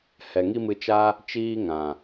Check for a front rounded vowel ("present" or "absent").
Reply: absent